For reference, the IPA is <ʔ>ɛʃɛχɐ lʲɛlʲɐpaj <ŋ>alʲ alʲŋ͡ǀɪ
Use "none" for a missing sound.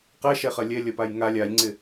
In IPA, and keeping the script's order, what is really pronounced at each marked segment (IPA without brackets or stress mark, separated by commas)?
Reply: q, ŋ